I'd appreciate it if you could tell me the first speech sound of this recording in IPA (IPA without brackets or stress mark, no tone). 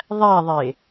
ðˤ